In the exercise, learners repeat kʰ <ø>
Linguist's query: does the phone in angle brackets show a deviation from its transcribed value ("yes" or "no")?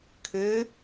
no